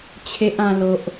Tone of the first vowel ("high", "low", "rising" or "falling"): high